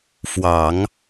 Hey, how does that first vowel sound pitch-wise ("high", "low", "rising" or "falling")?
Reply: low